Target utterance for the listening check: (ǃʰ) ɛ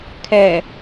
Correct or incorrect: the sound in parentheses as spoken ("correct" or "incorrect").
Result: incorrect